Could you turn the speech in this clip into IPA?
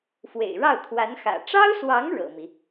fwḛ˨˩ɪ̯ɻɑ˥˩ʊ̯ t̪ʰwa˧˥nxä̰˨˩ ʈ͡ʂɑ˥ʊ̯swɑ˧˥ŋ ɻɤ̰˨˩mi˦

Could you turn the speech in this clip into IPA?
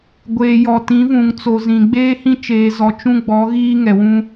ɡʷeː˨jɔ˨tĩ˨˦vũ˨ŋ t͡so˨zĩ˨ ɡ͡beː˦hĩ˦t͡ʃeː˨zɔ˨ t͡ʃũ˦ɡ͡bɔ˨˦ɣiː˦ ŋɛ˨wũ˦

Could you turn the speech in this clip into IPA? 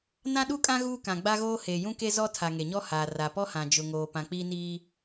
nã˦ɗu˦kʼã˦ ɣuː˦kã˨ ɡ͡ba˦ɣoː˦ heː˨jũ˦ke˦ zɔ˦tʰa˨ ŋe˨ɲɔ˦ haː˨ ra˨pɔ˦hã˨ d͡ʒʊ˨ŋoː˨ pã˨k͡piː˦niː˦

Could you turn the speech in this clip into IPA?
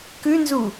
kʉnzu

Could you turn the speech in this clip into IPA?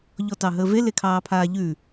ʎɔtɑɦəːve lekʰɑːpʰaːʎʉ

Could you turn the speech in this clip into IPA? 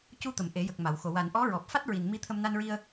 cu˧t̪ə˨˩˨m ʔe˨˩˦jə˨˩k̚ma˨˩˨wxo˨˩ wa˨˩˨n ʔɔ˧˥ɹɔ˨˩p̚ fa˦˥t̚ɹi˨˩n mi˧ t̪ʰə˧mna˧nɹi˧ə̯

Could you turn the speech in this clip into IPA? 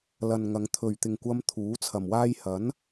lɐ˨nŋɐ˨˧ŋ t̪ʰɵ˨˩ɥ t̪ɪ˨ŋkʷɐ˧m t̪ʰuː˨˥t͡sʰɐ˨mwaː˥j hɐ˨˥n

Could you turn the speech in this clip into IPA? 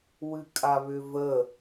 wɨkʼaβʏvə

